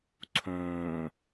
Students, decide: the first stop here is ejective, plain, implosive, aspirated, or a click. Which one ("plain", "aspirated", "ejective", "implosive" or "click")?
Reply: click